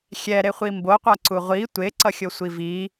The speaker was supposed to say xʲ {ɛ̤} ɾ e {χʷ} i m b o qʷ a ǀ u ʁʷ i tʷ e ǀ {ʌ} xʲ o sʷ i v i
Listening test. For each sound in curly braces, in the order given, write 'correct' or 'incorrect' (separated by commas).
incorrect, correct, correct